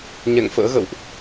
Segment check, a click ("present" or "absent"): absent